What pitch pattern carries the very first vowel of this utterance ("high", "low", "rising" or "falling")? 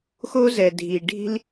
high